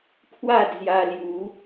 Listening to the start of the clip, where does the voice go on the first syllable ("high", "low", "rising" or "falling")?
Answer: falling